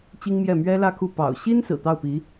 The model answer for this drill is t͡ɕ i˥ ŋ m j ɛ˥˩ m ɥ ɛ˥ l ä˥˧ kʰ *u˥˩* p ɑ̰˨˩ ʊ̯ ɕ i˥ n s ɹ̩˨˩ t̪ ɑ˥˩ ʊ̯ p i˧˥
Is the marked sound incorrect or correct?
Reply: correct